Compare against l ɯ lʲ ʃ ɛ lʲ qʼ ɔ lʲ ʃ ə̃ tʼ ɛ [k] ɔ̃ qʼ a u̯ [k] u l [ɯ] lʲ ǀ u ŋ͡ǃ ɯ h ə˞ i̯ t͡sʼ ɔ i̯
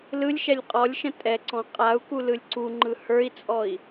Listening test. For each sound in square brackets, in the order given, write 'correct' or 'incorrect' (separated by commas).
incorrect, correct, correct